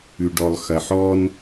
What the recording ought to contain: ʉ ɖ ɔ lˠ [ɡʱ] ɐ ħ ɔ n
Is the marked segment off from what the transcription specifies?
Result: yes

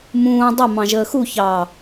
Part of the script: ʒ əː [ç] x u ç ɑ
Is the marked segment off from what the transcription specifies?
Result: yes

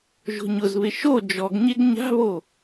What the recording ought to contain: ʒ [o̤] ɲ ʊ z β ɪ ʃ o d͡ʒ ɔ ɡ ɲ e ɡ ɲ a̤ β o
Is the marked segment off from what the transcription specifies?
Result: no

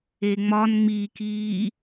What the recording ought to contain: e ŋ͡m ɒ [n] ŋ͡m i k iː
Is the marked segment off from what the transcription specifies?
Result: no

